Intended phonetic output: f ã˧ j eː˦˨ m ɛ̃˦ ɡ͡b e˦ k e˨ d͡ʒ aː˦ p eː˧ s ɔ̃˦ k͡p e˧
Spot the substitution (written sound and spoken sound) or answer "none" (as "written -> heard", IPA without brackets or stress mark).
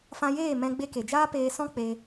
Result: none